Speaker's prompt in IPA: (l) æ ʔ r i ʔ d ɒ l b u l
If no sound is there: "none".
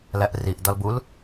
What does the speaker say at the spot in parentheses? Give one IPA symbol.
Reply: l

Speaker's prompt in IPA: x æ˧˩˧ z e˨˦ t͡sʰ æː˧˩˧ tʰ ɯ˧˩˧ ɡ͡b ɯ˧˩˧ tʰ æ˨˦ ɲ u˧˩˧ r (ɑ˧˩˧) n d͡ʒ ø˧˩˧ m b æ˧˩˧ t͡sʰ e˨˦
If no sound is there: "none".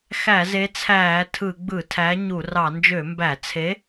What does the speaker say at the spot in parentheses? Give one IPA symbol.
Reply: ɑ˧˩˧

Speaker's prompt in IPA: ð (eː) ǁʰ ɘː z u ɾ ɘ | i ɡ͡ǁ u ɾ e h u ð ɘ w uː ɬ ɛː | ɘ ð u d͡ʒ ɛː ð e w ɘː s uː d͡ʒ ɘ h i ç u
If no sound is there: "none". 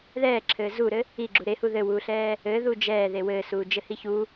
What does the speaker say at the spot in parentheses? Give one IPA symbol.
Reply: ɛː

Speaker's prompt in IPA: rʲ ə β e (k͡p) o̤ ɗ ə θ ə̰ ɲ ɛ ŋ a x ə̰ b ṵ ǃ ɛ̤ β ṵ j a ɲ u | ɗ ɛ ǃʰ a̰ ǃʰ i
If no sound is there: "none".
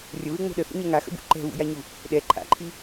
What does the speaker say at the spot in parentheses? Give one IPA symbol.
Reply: ŋ͡m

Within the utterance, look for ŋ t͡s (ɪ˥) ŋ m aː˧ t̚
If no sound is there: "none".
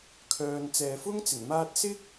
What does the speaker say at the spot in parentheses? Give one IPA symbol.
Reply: ɪ˨˩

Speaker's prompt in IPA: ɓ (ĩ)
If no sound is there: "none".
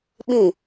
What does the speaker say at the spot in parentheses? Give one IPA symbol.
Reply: ĩ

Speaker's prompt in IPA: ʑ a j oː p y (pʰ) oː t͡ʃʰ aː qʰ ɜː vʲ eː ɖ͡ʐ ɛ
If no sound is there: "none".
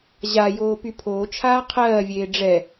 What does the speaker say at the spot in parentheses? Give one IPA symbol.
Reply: pʰ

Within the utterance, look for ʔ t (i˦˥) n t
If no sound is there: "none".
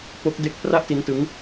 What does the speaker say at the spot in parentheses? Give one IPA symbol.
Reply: i˦˥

